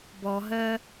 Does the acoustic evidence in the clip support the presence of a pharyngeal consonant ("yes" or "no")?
no